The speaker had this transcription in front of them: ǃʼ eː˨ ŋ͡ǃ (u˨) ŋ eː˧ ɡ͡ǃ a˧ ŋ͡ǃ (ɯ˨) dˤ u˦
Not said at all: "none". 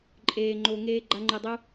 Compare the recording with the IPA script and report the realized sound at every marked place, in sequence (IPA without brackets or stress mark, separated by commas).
o˨, ɯ˨